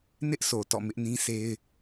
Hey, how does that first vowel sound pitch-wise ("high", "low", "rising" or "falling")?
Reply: high